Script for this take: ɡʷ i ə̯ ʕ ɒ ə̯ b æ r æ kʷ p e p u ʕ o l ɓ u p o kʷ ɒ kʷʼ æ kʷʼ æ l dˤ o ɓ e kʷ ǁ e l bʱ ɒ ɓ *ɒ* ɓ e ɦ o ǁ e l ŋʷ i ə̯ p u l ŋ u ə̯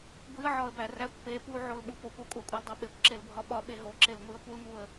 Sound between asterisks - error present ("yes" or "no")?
no